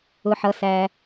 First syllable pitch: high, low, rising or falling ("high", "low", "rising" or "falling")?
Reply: low